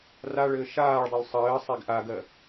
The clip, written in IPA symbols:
raɭɘː ʃaːɭdˤol sˤɘːsˤeɡ ʔaɡɜ

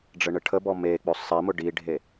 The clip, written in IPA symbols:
ɖ͡ʐəɳəʈʰəbɔ mek͡pɵ sˤi mʊɖiɖʱe

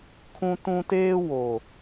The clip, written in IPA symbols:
kʰũ˦tũ˦ teː˦ wo˨

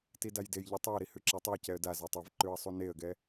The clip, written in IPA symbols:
tidajdejʎu tˤuə̯ɾi hʉǁatˤiə̯cɛə̯ da zatˤavǃʉə̯ sˤuneə̯ɡɛ

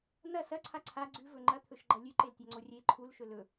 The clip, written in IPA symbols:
nɐ sɐǀʰa ǀʰa ɡ͡ǀʉvɵ ŋ͡ǃɐt̪ʰɵʃɡ͡ǃɐ lʲʉǃeltʲaŋ͡ǀo rʲe ǃʰulʃɵ lɵ

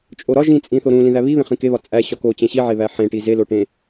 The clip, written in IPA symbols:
t͡ʃʼoɾɒ ʒĩt͡sʼĩθo ɾũ lĩðæβiβẽ χĩkeβɒ t͡sʼæ ɕɒko t͡ɕẽɕiʕeβæ ħẽʈi zelo ʈẽ

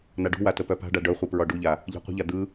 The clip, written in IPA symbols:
naɖṳwa təpœpa̤ɖa ɖœχʷɨ pɹɒɖuʎa | ʎɛ̤qʷə̤ʎa d̪ɯ

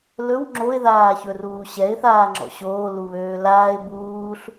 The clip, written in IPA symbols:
lɵw ŋ͡ǁoɪ̯ðaːçɵruː ɕɛɪ̯ θaːŋ͡ǁɔ̰ɕoː luβøːlaːɪ̯ buːɬ

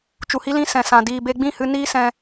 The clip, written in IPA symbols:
t͡ʃu˨hi˦lĩ˦ sɛ̃˨sã˨ diː˨be˧ɡ͡bĩ˦˨hɨ˧ niː˦sɛ̃˧

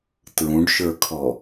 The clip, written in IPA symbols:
tɹũɖʃə˞kʰɔ

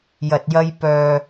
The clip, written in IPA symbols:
jɐ˨t̚jɐ˧j pœː˨

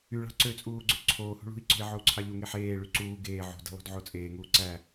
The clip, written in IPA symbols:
yɭɑ̤ ǀøt͡sʼuːɡ͡ǀø ǀʰoːhṳ ɭṳi̯ǀo̤i̯ʕou̯ǀʰɑ ʎuŋeħ eːɭy ǀuː ɡeː ʕo̤di̤lˠo̤dʕo t͡sʼeːŋuː ǀæ

